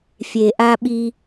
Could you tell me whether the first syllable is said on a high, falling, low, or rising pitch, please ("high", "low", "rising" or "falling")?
low